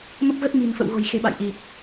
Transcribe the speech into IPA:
m ə˦˥ p̚ ɣ ə˦˥ t̚ m i̤˨˩ n f ə̰˧˨ w ɣ o̤˨˩ j x e̤˨˩ ɓ a̰˧˨ j ʔ i˨˩ k̚

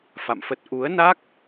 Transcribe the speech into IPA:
f a̰˧˨ m f ə˦˥ t̚ ʔ u˨˦ ə̯ n a˦˥ k̚

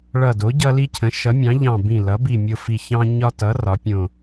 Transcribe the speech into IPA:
ɭ ʌ˧˩ d o˩˥ ɟ ʌ˦ l i˦ cʰ ə̃˩˥ ʃ ʌ˩˥ mʲ ɑ̃˩˥ ʎ ɑ̃˧˩ b ĩ˧˩ l ʌ˩˥ b i˧˩ mʲ o˧˩ f i˧˩ ç ɑ̃˦ ɲ ɒ˦ t ʌ˩˥ r ɒ˩˥ pʲ õ˧˩

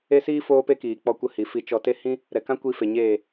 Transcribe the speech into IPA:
e˦ s iː˦ f oː˦ p e˦ k iː˨ k͡p ɔ˧ kʷ ə˧ h i˨ f i˧ t͡ʃ ɔ˧ t e˦ h ĩ˦ | ɾ ɛ˨ k ã˦ kʷ i˧ f e˨ ɲ eː˦˨

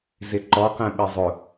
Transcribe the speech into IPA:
z ɪ ǃ ɔ q ɛ̃ ɓ ɪ zˤ ʊ

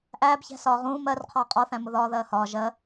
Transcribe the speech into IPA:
ʔ æː b ç æ̤ s ɒː ʁ ũː m ɜ r qʰ ɒː qʼ ɒ θ æ̃ m ʊ ð ɒː ð ɜː h ɒː ʒ ɜ

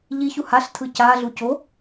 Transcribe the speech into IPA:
ʎ i ç u h a ɬ tʰ ɯ c a ɮ u c o

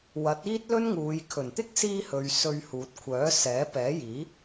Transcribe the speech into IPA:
w ɐ˨˥ t̚ iː˥ t̚ l ɵ˥ n ŋ uː˨˧ j kʰ ɵ˨˩ n t̪ ɪ˥ k̚ s iː˧ h ɵ˨ ɥ s ɵ˧ ɥ h uː˨ t̚ kʷʰ œː˨˥ s ɛː˨˥ p ɛː˨˥ j iː˨˥

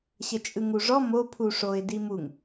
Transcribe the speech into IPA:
ɕ ə t͡ʃʼ ɯ ŋ u ʐ ɔ m o pʰ u ʂ o ɪ̯ d i m u ŋ

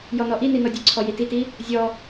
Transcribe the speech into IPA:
j ɔ n ɔ ʔ i n i n ɔ dʲ ɨ ǀʰ ɔ j i t i t i | zʲ ɔ

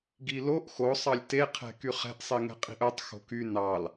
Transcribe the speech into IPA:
ɡ i l o ʔ x o sˤ ɑ lʲ t e qʰ ɛ̤ k y χ ɛ̤ ʔ sˤ i ŋ ɛ̤ qʼ i̤ ʔ œ tˤ x o̤ k y n ɑ l

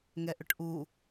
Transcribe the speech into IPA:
ŋ ɛ ʔ ʏ ʈ ʔ u

